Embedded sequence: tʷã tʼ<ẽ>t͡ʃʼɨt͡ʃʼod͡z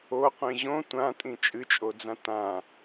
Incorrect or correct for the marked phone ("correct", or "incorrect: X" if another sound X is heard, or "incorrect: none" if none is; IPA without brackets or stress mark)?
incorrect: ĩ